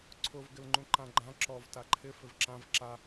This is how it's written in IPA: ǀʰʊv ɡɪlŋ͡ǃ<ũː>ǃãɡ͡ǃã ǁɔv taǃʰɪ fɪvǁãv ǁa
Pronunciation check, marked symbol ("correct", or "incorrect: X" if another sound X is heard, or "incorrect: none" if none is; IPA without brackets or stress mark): incorrect: ũ